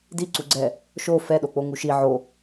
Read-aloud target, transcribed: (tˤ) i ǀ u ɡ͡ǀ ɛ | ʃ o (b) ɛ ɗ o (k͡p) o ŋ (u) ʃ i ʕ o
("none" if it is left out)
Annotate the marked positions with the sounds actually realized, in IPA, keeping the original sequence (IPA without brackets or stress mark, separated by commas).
d, f, k͡p, u